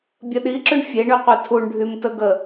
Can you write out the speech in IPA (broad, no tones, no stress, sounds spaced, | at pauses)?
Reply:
bʲ ə ɗ i ǁ ʉ ɳ fʲ e ɳ y qʷ e tʰ u ɳ ɖʱ y m t ə ɡ ə